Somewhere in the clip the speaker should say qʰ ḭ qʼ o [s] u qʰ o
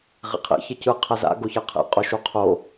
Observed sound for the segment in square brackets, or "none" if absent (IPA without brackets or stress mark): ʃ